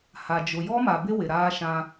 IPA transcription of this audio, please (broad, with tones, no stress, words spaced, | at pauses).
ha˨d͡ʒʊ˨ jɔ˦ma˨bɪ˦ wɪ˨ɾaː˦ʃã˦